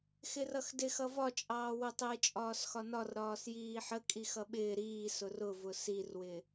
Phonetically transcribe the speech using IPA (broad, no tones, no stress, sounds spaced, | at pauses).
x ɪ r ʌ x d ɪ x ʌ v ɒ t͡ʃʼ ɑː w ʊ tˤ ɪː t͡ʃʼ ɒː s x ɒ n ɒ r ɾ ɒː s j iː ħ ə kʼ i x ʌ ɓ ɪː ɾ iː s ʊ r ʊ v ʊ s i r w ɪ